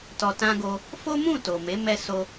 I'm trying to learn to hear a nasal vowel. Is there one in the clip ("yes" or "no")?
yes